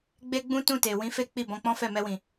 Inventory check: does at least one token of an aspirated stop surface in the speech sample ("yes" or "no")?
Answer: no